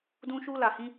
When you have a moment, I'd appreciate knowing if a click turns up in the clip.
no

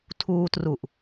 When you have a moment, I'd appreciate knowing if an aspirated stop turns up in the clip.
yes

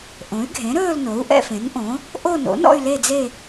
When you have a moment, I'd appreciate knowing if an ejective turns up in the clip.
no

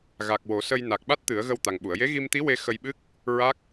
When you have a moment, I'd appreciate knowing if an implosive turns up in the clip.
yes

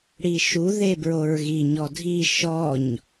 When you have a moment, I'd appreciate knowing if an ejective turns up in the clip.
no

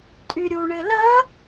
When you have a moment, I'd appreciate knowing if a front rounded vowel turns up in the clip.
yes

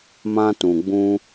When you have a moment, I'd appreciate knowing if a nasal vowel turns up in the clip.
yes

